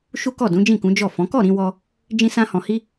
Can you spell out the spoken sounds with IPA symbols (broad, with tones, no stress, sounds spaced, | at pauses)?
ʃ u˦ k ɔ˦˨ d ũ˨˦ d͡ʒ ĩ˦˨ k ũ˨˦ d͡ʒ ɔ˦˨ f ɔ̃˨˦ k ɔ˦˨ ɾ ĩ˧ w ɔ˧ | d͡ʒ ĩ˦ s ã˦ h ɔ̃˧ h i˦